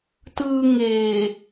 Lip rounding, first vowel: unrounded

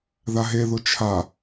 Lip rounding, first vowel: unrounded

